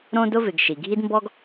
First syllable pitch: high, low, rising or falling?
high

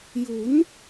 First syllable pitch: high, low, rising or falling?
rising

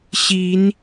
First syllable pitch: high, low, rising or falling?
rising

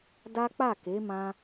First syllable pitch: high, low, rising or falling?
high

